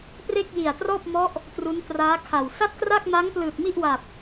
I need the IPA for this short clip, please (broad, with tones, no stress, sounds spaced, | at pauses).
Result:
p r e˥˩ k̚ j i˨˩ a̯ t r ɔː˥˩ p̚ m ɔ˦˥ ʔ | t r u˦˥ n t r aː˦˥ kʰ a˨˩ w s a˥˩ t̚ k r a˥˩ k̚ m a˦˥ ŋ p l ɯː˨˩ t̚ m i˥˩ ʔ w a˨˩ p̚